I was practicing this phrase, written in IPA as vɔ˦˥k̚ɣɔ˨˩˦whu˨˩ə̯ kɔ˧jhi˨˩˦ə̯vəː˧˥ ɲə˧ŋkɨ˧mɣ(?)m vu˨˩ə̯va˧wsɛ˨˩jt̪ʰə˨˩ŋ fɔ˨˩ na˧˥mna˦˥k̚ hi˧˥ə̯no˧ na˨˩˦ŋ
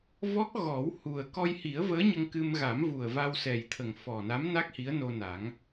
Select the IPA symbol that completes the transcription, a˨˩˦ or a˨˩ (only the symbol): a˨˩˦